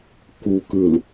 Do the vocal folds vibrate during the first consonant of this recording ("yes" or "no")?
no